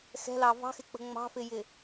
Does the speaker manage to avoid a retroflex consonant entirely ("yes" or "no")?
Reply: yes